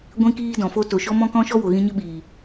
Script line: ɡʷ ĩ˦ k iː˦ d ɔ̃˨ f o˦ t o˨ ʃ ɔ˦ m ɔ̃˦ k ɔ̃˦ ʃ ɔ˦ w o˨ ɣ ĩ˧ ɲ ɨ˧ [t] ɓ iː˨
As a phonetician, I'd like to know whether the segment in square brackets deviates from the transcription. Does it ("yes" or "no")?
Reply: yes